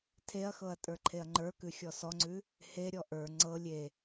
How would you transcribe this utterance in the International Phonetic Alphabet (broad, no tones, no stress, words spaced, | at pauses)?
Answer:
tʰeɐ̯xɤɐ̯ tʼə˞ǃʰeɐ̯ŋ͡ǃə˞kʉ xʲɔsɔŋ͡ǀʉ | heɾʲɔ ʔə˞ ŋ͡ǀɤ lʲe